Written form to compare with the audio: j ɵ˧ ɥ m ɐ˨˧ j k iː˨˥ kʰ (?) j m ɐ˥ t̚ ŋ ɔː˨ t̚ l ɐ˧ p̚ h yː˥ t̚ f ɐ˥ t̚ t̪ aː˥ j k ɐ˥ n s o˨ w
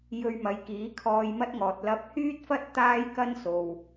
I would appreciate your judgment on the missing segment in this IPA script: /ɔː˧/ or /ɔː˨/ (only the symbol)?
ɔː˧